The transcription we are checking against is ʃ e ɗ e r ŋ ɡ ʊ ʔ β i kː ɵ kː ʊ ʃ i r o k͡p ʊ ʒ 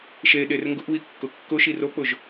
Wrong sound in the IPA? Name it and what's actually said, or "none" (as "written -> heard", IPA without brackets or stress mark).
ɵ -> ʊ